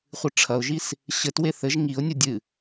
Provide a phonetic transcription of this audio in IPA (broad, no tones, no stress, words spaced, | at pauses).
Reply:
χʷɨʈ͡ʂʰɐʊ̯ʒis | ɕɘtwe θɘʒ ŋiʊ̯nʲo dʲɨ